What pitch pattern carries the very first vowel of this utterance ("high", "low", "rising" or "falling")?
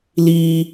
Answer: high